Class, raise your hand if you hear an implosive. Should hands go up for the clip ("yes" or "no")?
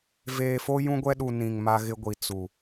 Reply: yes